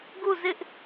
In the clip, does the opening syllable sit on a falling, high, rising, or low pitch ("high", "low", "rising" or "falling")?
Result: falling